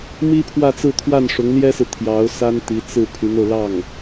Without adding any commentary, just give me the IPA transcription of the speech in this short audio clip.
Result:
m i˥ pʰ w ä˥˧ t͡s ɹ̩˥˧ t̪ʰ w a˥˩ n ʂ ʊ˧˥ ŋ l j ɛ˥ s ɹ̩˨ t̪ʰ j ɑ˧˥ ʊ̯ s a˥ n t̪ i˧˥ t͡s ɹ̩˥˩ pʰ y˧˥ n o˧ ʊ̯ l ɑ˥˩ ŋ

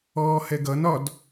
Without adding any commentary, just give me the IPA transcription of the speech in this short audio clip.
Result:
ɔː h ɛ ɡ ʌ n ɒ d

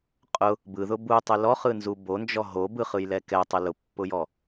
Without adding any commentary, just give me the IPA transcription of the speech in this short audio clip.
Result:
qʼ ʊ | b ɯ ð ʊ b u tˤ ʉ l ɔ χ ɯ n z u b o n d͡ʒ ɔ ɦ o b ɯ χ ɯ j l ɛ k ɛ tˤ ʊ l ʊ pː ʊ j ɔ

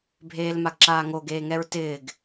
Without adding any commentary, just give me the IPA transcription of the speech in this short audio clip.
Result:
bʱ eː l m a ɡ ǁ aː ŋ o ɡ eː ŋ ɛ ɹ t ɪː ɡ

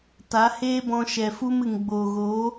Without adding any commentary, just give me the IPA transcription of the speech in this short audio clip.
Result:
t a˨˦ h eː˦ b ɔ̃˧ ʃ ɛ˨ f u˦ m ɨ˨ ŋ ɡ͡b oː˨ ɣ o˨˦

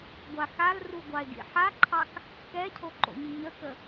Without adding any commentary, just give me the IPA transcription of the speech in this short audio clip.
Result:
ɡʷ a x a l r u ɡʷ ɑ e̯ ɡ ḭ ħ a ǃʰ ɑ k | k ɛ cʰ o ǃ o̰ ɲ i ɲ ə k ə

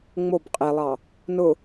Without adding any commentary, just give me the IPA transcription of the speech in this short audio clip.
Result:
ŋ͡m o b qʼ e lˠ ɑ | n ʊ

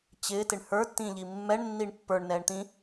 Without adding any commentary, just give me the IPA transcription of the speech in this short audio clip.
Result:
t͡ɕ ɪː t ɪ ɳ h ə˞ tː ĩː ʎ i mː ɛ ɳ nː i ɳ pː ə˞ ɳ n ɛː ɳ t̪ ĩ

